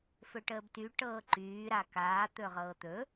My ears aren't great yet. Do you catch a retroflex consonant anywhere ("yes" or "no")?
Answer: yes